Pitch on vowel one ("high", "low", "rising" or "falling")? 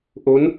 rising